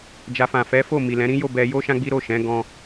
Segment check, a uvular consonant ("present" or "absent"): absent